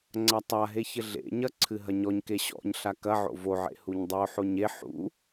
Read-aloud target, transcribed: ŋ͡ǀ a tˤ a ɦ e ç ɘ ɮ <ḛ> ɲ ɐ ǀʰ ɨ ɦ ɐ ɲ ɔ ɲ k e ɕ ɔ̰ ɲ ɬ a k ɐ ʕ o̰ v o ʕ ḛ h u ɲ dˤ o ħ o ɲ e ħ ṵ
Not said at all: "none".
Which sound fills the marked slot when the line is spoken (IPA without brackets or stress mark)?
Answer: ḛ